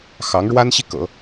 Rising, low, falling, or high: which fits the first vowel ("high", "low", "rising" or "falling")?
rising